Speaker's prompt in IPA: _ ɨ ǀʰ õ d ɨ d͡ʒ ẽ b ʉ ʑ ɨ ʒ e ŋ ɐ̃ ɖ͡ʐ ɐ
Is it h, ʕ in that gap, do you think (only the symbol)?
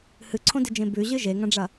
h